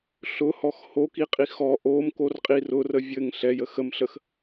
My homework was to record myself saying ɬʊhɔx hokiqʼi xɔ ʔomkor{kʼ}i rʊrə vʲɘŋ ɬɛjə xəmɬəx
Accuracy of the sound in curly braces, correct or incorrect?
incorrect